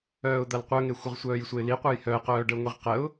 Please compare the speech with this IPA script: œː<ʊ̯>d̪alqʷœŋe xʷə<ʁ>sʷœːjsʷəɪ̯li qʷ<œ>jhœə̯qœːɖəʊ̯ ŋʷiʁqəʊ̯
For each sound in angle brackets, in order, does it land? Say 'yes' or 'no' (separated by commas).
yes, yes, yes